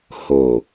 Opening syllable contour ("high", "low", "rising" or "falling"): low